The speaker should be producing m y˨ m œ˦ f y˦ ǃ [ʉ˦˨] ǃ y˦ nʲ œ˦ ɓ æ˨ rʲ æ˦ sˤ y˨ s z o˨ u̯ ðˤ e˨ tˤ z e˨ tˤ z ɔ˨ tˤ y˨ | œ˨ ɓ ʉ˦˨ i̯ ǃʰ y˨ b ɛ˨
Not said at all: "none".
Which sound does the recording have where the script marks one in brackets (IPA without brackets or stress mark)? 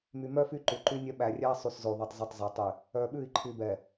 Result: ʉ˨